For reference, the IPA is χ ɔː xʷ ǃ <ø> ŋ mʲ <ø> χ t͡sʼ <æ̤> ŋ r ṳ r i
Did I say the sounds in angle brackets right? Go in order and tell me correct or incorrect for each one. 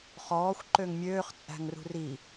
correct, incorrect, correct

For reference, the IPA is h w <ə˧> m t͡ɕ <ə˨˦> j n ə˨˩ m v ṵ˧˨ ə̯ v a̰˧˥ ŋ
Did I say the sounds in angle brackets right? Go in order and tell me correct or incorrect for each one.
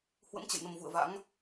incorrect, incorrect

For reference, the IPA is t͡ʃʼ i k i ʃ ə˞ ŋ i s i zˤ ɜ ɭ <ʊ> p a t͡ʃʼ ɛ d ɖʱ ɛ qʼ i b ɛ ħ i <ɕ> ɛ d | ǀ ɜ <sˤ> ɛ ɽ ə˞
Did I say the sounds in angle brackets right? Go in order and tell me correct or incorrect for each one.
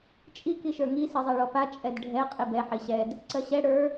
incorrect, correct, incorrect

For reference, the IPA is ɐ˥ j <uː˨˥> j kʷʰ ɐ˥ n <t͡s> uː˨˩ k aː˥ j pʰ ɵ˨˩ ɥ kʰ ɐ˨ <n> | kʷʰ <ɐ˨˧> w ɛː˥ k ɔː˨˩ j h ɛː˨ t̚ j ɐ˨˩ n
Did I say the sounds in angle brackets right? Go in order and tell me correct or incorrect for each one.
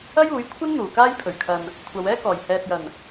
correct, incorrect, correct, correct

